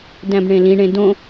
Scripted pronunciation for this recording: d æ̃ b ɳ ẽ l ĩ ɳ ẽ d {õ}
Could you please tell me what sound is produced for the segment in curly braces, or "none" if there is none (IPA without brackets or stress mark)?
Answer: õ